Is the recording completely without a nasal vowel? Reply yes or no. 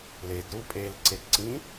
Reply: no